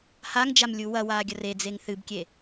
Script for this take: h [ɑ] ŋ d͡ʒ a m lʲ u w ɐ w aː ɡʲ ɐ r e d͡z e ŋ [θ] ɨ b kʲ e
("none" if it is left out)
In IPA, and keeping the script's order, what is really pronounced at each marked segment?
a, θ

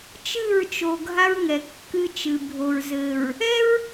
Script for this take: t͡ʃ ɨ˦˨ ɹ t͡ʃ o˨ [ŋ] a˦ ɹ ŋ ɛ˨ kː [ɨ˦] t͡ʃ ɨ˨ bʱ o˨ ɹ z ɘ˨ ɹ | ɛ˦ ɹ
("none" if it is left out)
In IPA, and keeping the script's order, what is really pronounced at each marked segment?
ɡʱ, ɨ˦

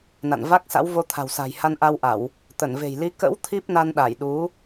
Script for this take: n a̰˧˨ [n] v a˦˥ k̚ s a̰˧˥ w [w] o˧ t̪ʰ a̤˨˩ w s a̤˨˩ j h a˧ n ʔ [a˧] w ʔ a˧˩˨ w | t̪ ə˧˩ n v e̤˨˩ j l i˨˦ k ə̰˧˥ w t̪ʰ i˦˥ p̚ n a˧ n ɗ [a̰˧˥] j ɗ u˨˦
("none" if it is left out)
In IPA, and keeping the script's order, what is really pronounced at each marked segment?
n, v, a˧, a˧˩

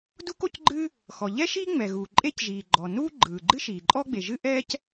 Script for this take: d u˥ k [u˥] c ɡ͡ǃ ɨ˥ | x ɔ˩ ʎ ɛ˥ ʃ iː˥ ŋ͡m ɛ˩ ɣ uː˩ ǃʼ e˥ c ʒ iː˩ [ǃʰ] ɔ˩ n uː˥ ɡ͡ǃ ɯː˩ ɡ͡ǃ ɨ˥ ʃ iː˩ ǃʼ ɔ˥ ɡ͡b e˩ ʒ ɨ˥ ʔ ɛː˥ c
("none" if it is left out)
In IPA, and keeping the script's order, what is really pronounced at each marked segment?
o˥, ɡ͡ǃ

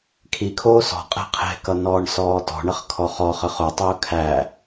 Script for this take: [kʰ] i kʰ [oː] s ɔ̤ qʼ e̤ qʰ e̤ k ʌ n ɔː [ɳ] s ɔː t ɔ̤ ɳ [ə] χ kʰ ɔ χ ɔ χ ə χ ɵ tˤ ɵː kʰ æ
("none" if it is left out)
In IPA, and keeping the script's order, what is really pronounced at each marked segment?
kʰ, oː, ɳ, ə

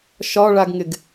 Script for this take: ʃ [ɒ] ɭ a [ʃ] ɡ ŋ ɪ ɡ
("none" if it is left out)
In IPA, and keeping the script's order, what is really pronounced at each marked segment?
ɒ, none

